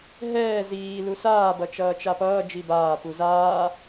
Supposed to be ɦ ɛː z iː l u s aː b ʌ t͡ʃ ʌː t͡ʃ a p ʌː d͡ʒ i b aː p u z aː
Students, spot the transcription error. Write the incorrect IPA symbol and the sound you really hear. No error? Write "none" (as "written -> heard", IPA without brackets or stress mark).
none